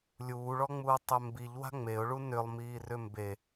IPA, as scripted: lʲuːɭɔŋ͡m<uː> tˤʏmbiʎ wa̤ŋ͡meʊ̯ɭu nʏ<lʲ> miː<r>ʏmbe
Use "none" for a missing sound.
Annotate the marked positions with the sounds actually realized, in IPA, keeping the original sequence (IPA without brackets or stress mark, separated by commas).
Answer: uː, lˠ, r